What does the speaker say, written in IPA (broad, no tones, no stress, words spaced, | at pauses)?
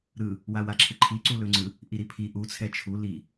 ɾɯ | wawaǁʰɯǃʰi ǀulɵŋ͡ǀɯ | ʔiɾipʰi ʔu t͡sʰɛt͡ʃʰu li